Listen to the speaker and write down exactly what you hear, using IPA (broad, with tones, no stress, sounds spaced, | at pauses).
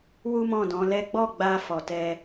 w u˦ m ɔ̃˦˨ d ɔ̃˨˦ l ɛ˦ ɡ͡b ɔ˦˨ ɡ͡b a˧ f ɔ˧ t ɛ˦